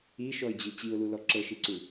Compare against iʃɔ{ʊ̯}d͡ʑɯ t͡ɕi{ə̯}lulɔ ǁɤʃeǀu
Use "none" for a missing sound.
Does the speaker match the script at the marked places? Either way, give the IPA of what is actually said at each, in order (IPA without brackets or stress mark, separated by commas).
ɪ̯, ʊ̯